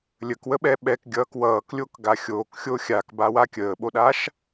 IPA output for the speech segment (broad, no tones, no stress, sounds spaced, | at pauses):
lʲ ə k w ə ɓ ɛ ɓ ɛ k ɡʲ ʌː k w ʌː k lʲ o k ɡ a xʲ oː k xʲ o xʲ a k b a w a kʲ əː ɓ o ɗ a ʃ